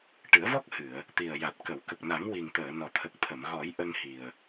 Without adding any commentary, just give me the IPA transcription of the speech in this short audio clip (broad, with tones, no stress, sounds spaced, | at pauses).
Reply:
ʈ ɨ˨˩˦ ə̯ v ɔ˦˥ k̚ h ɨ˨˩˨ ə̯ | t̪ i˨˩ ə̯ j a˨˩ t̚ k ə˨˩˨ w k ə˨˩ k̚ n a˨˩˦ ŋ w i˨˩ ŋ t̪ əː˨˩˨ n ɔ˨˩ t̪ʰ ə˨˩ k̚ t̪ʰ ə˨˩˨ m ɣ ɔ˨˩˦ j ʔ ə˧ ŋ h i˨˩ ə̯